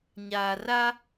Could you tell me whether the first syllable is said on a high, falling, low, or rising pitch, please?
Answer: low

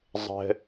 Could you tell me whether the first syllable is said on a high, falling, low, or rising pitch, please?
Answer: low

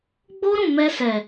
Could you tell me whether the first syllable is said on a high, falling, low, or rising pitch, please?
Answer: high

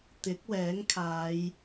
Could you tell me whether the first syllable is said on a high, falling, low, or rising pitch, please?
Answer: rising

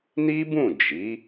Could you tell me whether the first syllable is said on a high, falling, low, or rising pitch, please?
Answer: high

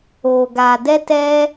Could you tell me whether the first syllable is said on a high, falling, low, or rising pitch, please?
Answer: low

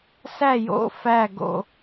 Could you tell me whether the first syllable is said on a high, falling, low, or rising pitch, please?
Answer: falling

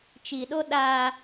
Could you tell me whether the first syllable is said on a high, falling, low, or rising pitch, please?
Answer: low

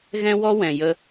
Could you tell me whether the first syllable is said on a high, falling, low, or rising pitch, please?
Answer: high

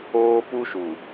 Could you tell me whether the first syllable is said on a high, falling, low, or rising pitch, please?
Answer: high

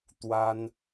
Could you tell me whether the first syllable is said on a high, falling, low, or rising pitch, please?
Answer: high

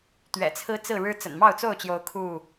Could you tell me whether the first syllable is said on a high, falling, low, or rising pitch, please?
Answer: low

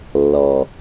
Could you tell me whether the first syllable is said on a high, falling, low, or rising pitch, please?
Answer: low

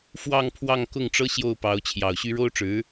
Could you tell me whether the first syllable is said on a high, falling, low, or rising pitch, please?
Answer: falling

